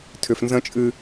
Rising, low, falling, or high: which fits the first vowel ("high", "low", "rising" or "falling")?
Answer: low